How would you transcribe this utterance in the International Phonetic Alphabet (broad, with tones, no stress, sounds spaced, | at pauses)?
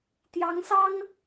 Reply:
t̪ j ɑ˧˥ ŋ s ɑ˥ ŋ